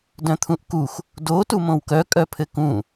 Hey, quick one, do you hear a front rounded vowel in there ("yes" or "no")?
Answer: yes